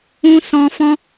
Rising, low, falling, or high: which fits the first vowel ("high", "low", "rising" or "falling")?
high